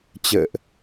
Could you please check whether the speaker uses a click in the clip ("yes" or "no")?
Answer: no